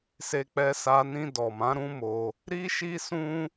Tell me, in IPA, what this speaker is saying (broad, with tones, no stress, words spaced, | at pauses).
se˧k͡pɛ˧sa˧nĩ˧ dɔ˨mã˨˦ɾũ˦mo˧ | ɾi˦ʃi˦sũ˦